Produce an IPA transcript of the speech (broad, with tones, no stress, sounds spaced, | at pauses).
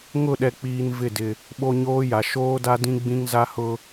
ŋ ʊ˦˨ ɗ ɛ˨ k͡p iː˨ n v ɪ˦˨ d ɪ˨ | ɓ o˦ ɲ oː˦ j a˨ ʃ oː˦ d a˦ d ĩ˦ ɡ͡b ĩ˦ ŋ z a˦ h ʊ˦